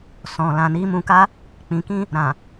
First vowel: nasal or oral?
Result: nasal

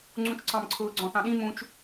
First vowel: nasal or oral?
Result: nasal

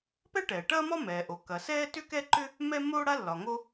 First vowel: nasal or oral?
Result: oral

